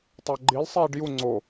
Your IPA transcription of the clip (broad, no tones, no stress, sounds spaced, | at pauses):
tˤ a ɡ͡ǃ i l sˤ iː ɖ j u ŋ͡ǀ o